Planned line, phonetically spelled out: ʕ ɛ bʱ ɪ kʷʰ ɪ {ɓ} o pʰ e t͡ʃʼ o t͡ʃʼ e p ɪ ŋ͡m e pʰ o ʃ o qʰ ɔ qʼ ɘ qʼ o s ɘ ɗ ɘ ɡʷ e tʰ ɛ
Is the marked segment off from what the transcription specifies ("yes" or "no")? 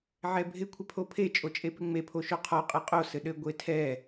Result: yes